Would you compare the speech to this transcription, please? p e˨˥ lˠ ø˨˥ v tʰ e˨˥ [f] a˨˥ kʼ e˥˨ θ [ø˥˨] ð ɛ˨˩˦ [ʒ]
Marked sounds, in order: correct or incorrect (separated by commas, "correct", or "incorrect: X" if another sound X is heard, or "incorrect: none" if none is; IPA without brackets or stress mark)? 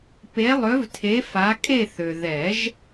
correct, incorrect: ø˨, correct